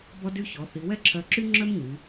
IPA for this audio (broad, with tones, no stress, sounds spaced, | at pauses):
b ɔ˧ d y˧ ç ɔ˩˧ θ i˩˧ w ɛ˥˧ ǁʰ œ˧˩ ǁ y˥ ŋ͡ǁ œ˥ m ɲ y˩˧